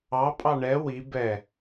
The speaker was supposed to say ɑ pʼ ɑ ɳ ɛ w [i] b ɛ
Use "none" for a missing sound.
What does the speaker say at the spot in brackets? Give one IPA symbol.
i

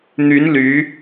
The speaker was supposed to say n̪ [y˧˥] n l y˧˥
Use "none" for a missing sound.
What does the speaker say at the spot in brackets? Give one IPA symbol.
y˧˥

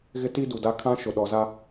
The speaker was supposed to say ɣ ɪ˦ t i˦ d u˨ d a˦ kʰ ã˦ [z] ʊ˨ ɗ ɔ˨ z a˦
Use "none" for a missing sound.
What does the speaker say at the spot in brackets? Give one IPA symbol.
ʃ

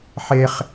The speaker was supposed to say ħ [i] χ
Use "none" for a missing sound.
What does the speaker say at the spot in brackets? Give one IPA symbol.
e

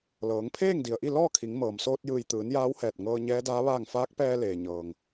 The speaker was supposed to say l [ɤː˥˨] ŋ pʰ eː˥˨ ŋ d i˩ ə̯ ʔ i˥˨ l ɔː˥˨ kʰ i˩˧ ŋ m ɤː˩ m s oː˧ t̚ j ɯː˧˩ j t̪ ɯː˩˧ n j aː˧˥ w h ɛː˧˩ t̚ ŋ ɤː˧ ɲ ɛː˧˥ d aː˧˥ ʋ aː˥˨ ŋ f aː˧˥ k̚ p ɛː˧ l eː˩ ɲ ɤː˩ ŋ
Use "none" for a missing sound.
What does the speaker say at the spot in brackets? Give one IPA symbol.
ɤː˩˧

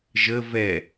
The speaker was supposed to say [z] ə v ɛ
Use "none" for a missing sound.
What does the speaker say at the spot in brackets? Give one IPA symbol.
ʒ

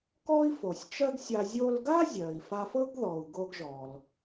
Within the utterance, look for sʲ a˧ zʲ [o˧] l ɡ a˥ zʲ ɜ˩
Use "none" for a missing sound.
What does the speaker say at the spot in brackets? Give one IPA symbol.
o˧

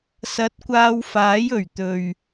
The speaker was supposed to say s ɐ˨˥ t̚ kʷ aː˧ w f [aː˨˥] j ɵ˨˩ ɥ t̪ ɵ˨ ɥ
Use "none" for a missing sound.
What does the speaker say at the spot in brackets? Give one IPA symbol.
aː˨˥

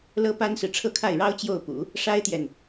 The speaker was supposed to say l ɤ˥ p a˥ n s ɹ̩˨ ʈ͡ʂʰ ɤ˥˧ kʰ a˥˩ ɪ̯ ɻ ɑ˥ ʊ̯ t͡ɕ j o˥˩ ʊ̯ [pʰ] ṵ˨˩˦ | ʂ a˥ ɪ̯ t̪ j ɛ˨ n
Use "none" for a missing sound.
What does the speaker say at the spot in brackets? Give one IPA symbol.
p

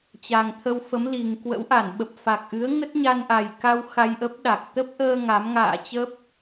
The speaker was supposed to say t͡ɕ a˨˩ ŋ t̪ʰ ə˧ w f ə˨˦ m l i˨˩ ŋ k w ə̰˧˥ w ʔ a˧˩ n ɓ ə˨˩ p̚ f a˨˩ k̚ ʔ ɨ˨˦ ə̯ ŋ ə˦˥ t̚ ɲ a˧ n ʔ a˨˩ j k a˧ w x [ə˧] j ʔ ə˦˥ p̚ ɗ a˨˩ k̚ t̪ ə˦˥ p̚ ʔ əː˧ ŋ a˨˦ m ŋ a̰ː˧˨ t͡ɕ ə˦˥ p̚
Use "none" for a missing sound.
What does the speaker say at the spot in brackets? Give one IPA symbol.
a˧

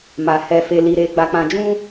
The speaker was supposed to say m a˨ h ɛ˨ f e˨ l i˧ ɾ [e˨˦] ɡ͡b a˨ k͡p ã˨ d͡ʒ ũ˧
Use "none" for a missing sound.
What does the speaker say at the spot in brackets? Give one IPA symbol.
e˧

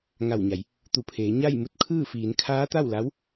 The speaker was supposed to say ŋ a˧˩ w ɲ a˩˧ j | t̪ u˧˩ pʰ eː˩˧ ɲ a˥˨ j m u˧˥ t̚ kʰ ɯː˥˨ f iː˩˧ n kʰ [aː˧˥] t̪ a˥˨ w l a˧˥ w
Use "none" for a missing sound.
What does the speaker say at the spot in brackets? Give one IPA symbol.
aː˧˥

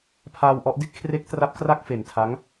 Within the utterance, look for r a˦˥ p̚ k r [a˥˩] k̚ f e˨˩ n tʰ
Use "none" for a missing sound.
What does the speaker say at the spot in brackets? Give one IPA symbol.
a˥˩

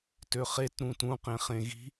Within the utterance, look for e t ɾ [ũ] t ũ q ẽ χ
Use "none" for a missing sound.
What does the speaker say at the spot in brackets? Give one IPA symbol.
ũ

